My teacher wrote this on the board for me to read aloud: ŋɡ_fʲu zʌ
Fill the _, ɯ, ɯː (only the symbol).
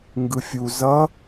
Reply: ɯ